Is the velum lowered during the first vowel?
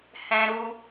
yes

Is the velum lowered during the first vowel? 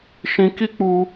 yes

